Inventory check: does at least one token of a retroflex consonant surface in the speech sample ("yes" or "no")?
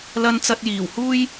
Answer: no